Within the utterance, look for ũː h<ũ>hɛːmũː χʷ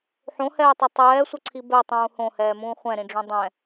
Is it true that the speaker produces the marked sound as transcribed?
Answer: no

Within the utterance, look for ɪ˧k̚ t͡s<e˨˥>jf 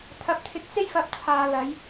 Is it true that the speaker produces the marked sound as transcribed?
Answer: no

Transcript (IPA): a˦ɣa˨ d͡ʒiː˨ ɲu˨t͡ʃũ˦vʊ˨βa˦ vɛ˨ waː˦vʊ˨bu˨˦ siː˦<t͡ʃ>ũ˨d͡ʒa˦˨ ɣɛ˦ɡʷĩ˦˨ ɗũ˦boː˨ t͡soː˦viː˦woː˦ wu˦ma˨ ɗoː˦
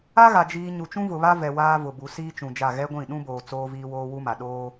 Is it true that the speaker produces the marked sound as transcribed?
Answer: yes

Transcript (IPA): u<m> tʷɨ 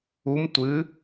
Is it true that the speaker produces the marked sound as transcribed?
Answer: yes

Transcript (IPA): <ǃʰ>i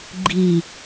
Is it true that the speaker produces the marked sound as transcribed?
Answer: no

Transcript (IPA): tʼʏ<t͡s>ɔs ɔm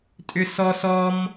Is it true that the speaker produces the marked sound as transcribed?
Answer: no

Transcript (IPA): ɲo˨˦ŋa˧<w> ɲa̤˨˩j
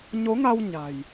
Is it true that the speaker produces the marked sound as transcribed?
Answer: yes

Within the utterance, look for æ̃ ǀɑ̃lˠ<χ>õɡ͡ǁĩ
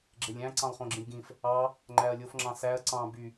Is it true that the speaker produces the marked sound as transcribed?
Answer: yes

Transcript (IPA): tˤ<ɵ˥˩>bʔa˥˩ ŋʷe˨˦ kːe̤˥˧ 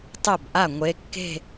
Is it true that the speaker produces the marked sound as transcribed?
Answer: yes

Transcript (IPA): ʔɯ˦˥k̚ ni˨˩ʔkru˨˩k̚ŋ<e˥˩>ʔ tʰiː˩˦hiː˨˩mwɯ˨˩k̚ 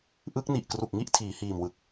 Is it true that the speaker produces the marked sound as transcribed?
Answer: no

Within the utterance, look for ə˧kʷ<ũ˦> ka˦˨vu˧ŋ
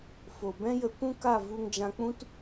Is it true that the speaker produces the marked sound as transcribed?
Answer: yes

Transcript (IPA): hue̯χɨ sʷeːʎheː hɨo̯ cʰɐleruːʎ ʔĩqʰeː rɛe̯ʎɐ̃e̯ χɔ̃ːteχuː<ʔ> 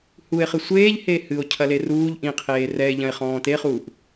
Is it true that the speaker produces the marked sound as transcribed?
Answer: yes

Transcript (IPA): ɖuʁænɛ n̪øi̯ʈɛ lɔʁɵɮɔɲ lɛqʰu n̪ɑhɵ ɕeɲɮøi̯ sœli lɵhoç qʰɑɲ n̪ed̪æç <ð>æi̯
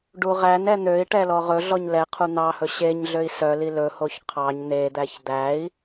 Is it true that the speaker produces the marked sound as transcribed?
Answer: no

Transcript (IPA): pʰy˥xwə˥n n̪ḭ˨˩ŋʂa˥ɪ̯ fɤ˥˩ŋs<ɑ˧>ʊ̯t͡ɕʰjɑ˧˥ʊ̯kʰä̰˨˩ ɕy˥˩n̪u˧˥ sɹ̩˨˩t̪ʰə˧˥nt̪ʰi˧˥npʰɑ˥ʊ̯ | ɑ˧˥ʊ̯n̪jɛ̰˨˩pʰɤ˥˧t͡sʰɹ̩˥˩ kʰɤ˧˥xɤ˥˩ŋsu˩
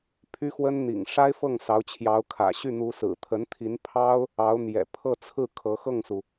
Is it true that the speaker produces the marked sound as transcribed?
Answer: no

